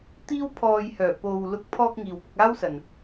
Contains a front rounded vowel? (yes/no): yes